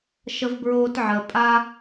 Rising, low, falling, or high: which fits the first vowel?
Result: low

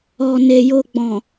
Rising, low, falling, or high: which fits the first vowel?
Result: low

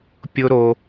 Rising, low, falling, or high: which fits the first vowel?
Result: high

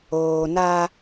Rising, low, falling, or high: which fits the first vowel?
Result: low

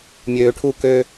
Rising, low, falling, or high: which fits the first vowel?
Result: low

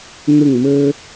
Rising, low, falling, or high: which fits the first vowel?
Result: falling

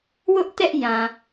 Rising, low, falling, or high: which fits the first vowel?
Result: high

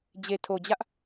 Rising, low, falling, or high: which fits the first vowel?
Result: low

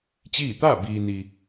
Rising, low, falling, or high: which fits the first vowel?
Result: falling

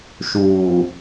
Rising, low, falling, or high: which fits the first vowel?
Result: low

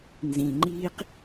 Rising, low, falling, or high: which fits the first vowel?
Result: low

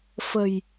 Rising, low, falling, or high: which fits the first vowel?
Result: low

